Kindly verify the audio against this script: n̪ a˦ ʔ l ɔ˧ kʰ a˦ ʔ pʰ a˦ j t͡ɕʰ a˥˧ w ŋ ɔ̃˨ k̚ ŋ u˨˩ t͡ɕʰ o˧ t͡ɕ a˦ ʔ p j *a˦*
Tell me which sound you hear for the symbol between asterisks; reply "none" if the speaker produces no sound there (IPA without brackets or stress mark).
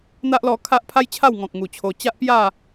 a˥˧